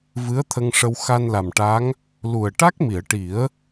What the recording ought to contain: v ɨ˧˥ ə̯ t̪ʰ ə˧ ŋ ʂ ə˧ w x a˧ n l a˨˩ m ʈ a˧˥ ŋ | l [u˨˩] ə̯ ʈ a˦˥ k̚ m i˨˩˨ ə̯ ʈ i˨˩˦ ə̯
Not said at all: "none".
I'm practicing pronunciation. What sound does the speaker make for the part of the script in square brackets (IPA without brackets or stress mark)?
u˨˩